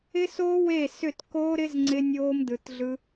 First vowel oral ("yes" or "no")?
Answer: yes